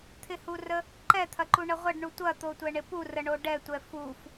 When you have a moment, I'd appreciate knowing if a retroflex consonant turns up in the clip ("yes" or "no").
yes